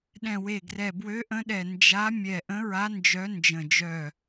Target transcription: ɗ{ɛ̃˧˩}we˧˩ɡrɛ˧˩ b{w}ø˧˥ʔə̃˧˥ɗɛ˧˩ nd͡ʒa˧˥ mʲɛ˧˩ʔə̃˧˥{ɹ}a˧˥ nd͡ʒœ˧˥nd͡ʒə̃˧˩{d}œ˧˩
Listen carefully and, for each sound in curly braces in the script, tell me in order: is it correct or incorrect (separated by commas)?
correct, correct, correct, incorrect